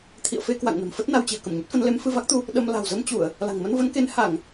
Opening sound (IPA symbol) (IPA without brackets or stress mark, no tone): t̪ʰ